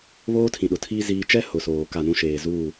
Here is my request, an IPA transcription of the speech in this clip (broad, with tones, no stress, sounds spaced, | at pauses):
β oː˦ tʰ ĩ˨ ɗ ʊ˨ tʰ iː˦ z iː˦ t͡ʃ ɛ˦ h ʊ˨ s oː˨ k a˦˨ n ũ˦ ʃ eː˨ z uː˦˨